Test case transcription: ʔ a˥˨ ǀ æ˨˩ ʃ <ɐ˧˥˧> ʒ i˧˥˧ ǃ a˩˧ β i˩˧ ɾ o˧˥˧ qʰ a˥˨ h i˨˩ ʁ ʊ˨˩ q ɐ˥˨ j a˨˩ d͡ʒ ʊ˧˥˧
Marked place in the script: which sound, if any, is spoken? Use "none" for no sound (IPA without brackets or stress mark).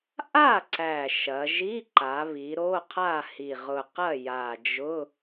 ɐ˩˧